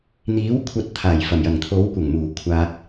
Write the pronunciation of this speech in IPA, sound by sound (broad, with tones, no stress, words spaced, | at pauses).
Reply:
n̪iː˨˥wkʷʰɐ˨˥t̚ t̪ʰaː˨˩jfɐ˨˩mjɐ˨˩ŋ t̪ʰo˨˥wkʷɐ˨˩ŋmuː˨˩ kʷʰaː˧k̚